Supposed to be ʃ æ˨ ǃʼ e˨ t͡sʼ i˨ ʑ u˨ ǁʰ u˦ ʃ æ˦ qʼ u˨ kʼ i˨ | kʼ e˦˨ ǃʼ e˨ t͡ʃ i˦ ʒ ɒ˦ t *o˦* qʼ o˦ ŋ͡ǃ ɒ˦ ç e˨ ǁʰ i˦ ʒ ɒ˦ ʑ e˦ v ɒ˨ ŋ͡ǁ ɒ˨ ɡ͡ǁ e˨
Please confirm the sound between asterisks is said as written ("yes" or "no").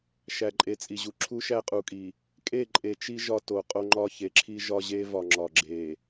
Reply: no